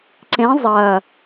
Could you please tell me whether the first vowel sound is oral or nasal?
nasal